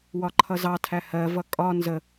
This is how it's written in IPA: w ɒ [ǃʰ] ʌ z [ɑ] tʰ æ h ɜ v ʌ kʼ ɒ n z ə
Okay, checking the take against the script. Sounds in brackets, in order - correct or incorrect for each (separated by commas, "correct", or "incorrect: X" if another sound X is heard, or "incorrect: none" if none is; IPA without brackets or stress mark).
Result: correct, correct